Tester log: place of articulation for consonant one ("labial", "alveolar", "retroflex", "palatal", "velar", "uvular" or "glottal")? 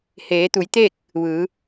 glottal